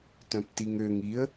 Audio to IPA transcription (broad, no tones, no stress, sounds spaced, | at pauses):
t œ̃ p t i ŋ ø ŋ i ə̯